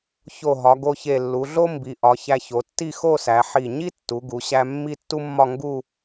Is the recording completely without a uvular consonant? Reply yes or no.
yes